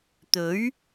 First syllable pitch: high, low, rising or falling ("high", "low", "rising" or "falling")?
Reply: rising